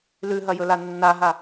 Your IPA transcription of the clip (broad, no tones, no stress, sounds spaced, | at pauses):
l ʉ ɦ ɐ j ɵ l a nː a ɦ a